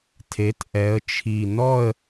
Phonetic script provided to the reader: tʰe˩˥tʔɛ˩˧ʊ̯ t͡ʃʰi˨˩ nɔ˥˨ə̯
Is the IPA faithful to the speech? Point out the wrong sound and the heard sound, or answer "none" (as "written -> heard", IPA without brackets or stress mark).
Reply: ʊ̯ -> ə̯